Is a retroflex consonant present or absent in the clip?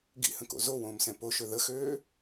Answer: absent